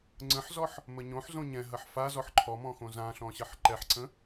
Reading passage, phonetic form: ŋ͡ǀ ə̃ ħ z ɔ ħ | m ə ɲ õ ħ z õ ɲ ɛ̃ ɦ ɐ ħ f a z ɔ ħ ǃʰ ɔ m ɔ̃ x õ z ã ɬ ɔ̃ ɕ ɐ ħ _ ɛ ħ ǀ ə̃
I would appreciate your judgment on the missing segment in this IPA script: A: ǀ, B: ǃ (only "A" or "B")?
B